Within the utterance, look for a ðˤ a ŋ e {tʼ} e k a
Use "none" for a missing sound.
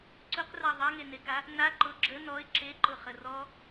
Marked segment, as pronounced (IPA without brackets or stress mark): n